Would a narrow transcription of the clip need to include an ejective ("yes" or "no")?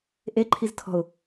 no